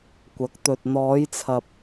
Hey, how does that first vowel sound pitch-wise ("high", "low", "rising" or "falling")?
rising